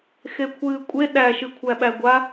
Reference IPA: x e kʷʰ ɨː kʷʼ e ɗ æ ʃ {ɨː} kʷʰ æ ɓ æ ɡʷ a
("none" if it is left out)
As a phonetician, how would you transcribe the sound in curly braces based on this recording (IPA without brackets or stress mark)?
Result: ɨ